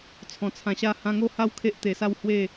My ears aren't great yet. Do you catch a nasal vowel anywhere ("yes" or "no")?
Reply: yes